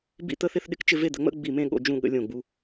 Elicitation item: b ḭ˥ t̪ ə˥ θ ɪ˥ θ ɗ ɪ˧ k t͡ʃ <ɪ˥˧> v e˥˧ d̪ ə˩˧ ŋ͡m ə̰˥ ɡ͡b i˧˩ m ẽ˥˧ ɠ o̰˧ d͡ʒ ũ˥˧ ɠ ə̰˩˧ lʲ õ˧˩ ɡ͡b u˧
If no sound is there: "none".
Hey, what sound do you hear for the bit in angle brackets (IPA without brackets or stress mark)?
ɪ˥˧